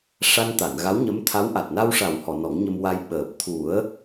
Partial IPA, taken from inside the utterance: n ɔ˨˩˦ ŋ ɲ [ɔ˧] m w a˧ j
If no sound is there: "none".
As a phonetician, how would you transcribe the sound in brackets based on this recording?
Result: ə˧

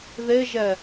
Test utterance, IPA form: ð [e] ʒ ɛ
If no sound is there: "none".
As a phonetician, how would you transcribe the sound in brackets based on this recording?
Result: e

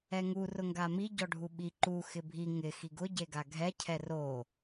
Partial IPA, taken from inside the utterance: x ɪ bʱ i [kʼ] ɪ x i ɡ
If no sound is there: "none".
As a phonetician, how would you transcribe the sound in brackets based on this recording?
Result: ŋ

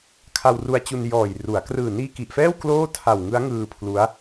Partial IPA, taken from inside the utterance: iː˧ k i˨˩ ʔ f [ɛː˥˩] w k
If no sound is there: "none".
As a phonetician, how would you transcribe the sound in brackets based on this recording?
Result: ɛː˥˩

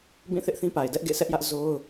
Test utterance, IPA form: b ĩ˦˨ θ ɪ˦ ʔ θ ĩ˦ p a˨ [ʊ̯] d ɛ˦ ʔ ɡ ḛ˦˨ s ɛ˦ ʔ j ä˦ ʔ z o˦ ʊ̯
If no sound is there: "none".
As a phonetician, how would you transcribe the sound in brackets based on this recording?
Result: ɪ̯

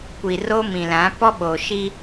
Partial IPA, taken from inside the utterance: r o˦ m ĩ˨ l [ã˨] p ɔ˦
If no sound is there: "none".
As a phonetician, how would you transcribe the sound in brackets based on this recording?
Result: ã˨˦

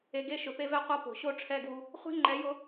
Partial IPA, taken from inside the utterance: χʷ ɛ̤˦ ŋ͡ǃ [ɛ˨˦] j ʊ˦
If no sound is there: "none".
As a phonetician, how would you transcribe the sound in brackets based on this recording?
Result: ɛ˨˦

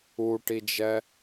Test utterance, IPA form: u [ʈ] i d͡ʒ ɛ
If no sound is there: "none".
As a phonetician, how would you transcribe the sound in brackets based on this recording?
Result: ʈ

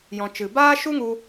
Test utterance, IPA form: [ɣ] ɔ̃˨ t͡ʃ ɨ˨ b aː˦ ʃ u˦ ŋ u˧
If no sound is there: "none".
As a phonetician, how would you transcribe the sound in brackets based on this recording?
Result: j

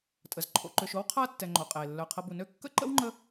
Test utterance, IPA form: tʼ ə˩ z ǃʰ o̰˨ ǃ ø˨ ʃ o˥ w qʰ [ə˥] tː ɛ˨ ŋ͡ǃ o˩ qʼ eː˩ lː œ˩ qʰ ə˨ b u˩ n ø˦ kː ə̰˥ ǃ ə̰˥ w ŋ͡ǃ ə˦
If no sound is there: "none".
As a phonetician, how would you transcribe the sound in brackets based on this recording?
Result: a˥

